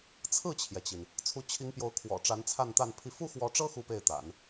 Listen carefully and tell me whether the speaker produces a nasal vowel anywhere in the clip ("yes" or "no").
no